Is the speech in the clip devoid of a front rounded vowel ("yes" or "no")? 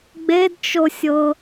yes